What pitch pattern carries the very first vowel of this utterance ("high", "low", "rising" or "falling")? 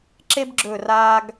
high